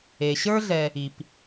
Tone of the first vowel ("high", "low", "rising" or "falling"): low